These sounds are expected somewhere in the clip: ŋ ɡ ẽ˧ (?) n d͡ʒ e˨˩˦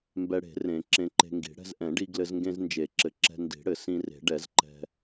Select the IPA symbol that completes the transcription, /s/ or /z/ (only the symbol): z